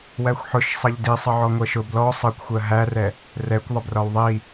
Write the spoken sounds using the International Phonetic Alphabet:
w æ xʷ ħ ʊ ʃ sˤ ʌ ʎ d i sˤ ʌ ʕ ɔ ŋʷ ɜ ʃ ʊ b l ɔ sˤ ʌ kʷ xʷ ɜ ɦ æ r ɛ | r ɛ kʷ ðˤ ə b r ɒ w ðˤ i

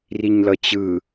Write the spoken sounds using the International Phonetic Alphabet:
r i ɲ l ʌ t͡ɕ ɯ

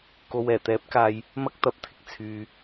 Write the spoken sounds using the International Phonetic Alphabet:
k o˨ w ɛː˨˩ t̪ ɛː˨˥ p̚ k aː˨ j | m ɐ˥ k̚ t̪ ɐ˧ p̚ t̪ʰ ɪ˨ k̚ t͡sʰ yː˨

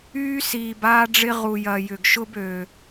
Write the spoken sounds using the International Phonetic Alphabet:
yː˦ s iː˨ b aː˦ ɖ͡ʐ ɪ˦ ʁ u˨ j ɐ˨ j ʏ˨ ɡ ʃ ʊ˦ b ø˨

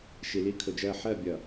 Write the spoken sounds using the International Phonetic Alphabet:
ʃ i˨ l i˦ kʰ ʊ˨ d͡ʒ ɜ˦˨ ħ ɜ˦˨ bʲ ʌ˨

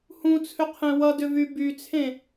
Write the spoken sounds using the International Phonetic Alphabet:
h ũ t͡sʰ ʏ qʰ ẽ w ʌ d ʏ v y b y t͡sʰ ẽ

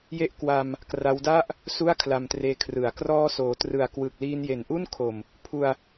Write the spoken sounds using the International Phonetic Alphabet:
j e˦˥ ʔ k w a˧ m | k r a˦˥ w d a˥˩ ʔ | s u˥˩ a̯ kʰ l a˧ m t r eː˧ kʰ r ɯ˨˩ a̯ k r ɔː˧ s oː˩˦ t r ɯ˨˩ a̯ k w ɯ˨˩ k̚ l iː˧ n j e˨˩ n ʔ u˥˩ n kʰ o˨˩ m | pʰ u˧ a̯

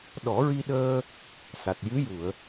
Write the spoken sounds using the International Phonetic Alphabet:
ɗ ɔ˨˩˦ ɹ i˧ ɗ əː˧ | s a˨˩ t̚ j ɨ˧˥ j u˨˩˨ ə̯

